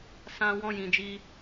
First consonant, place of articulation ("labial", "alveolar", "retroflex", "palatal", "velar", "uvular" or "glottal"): alveolar